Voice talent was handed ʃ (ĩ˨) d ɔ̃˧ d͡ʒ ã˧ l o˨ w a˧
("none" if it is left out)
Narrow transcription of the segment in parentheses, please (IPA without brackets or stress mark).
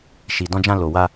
i˨